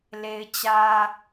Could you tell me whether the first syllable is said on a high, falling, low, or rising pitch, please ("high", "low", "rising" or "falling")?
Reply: high